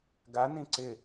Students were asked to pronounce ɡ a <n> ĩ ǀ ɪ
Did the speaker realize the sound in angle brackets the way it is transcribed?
yes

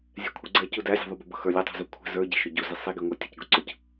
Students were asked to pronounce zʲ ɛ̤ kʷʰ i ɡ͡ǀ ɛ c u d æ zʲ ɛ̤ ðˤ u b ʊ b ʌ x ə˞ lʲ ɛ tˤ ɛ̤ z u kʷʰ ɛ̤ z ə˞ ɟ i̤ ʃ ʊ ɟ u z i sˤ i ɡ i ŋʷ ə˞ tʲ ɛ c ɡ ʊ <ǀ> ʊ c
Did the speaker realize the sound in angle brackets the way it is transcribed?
yes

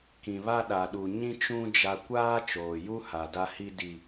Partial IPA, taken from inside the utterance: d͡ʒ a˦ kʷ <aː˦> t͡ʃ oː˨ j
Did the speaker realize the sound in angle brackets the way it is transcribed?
yes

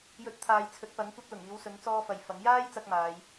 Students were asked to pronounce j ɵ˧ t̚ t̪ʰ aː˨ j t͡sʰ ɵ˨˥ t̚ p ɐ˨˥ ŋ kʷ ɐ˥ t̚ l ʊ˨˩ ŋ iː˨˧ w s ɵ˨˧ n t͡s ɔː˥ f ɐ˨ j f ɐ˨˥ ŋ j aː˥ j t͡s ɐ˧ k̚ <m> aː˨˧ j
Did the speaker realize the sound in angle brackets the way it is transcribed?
yes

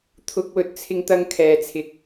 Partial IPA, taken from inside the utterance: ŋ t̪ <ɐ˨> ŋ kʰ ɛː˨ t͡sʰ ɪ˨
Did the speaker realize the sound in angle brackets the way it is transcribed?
no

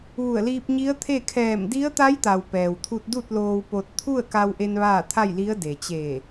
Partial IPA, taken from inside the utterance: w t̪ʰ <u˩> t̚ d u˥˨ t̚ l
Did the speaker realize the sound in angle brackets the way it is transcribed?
no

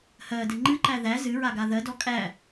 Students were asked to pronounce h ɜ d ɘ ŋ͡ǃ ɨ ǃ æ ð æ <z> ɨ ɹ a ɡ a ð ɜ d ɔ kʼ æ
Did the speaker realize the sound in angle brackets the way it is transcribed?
yes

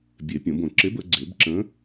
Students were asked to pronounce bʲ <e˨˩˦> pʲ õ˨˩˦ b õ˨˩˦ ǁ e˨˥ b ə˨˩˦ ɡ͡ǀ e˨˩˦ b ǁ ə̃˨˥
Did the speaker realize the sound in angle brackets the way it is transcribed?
yes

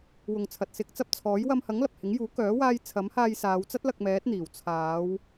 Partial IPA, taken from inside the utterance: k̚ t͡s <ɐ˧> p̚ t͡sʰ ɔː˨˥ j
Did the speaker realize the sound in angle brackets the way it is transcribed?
yes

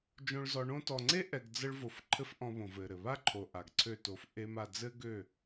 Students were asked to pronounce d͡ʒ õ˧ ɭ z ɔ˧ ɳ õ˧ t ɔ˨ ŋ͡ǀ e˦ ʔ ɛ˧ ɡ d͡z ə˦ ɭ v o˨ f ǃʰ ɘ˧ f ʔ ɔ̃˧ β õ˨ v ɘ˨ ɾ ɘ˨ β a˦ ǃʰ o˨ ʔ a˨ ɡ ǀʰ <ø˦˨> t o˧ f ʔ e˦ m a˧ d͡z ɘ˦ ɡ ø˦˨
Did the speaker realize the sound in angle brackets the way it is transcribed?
yes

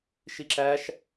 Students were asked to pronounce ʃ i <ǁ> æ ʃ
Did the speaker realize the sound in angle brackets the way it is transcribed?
yes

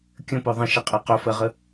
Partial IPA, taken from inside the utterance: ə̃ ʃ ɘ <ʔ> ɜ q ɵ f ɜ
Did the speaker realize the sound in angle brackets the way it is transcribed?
no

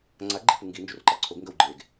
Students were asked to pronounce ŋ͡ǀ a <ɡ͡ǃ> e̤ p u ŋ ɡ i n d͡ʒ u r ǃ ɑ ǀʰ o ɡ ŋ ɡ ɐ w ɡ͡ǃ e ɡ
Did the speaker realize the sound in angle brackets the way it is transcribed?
yes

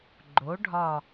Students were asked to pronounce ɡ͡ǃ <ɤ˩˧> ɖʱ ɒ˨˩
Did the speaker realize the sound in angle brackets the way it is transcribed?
no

